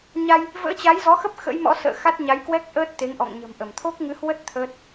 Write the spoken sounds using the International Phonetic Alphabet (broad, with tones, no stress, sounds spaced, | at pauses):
ɲ a˧ j | v ə̰ː˧˥ t͡ɕ a˨˦ j z ɔ˨˦ x ə˦˥ p̚ x ə̰˧˥ j m ɔ̰˧˥ s ə̰ː˧˨ x a˦˥ t̚ ɲ a˨˦ j k w ɛ˦˥ k̚ ʔ əː˦˥ t̚ t̪ e˨˦ ŋ ʔ ɔ̰˧˨ ŋ ɲ ə̤˨˩ m ʔ ə˧˩ m t̪ʰ o˦˥ k̚ ŋ ɨ˨˦ h w ə˦˥ t̚ t̪ʰ əː˦˥ t̚